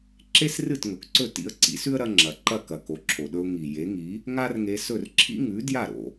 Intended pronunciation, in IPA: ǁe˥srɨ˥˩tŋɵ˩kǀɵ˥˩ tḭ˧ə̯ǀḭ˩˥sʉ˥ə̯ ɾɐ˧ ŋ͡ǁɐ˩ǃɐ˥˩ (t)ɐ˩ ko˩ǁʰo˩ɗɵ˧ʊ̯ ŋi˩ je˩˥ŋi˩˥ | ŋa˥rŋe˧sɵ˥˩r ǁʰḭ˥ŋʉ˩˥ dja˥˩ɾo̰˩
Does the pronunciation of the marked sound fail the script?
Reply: yes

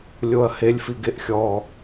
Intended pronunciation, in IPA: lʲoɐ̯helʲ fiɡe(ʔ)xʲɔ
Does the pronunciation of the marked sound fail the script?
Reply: no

